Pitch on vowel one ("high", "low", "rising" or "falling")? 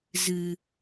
low